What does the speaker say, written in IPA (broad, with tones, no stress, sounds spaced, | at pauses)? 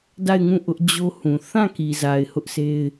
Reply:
d a˦˨ ɪ̯ ŋ ũ˦˨ ʔ ʊ˦ ʔ d͡ʑ o˦ h ũ˨ θ ã˦˨ k i˨ z a˨ ɪ̯ h ʊ˦ ʔ s e˦ ɪ̯